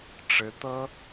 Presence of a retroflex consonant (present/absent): present